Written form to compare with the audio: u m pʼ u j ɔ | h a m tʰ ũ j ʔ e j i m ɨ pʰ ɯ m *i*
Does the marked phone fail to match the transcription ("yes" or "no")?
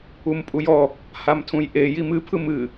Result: yes